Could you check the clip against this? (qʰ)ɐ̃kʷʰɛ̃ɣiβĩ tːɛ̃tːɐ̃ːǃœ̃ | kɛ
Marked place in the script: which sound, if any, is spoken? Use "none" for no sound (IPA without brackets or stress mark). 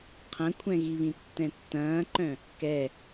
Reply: qʰ